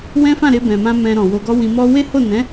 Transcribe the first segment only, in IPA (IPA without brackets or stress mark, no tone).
w